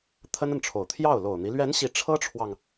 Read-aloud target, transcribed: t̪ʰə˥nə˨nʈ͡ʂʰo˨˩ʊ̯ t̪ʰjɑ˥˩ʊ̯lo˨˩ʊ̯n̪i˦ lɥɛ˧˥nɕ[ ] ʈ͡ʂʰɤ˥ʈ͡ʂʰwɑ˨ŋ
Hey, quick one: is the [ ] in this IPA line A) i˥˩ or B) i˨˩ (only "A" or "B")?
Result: B